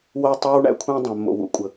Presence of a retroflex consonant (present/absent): present